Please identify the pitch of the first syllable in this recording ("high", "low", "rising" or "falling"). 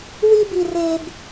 high